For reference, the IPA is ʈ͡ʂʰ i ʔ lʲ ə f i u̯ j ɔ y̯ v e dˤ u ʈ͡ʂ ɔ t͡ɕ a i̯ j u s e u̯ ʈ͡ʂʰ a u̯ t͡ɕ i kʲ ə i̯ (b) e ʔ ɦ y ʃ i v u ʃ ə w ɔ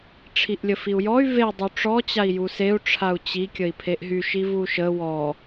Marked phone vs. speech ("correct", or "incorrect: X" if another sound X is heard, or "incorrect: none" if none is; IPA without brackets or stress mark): incorrect: pʰ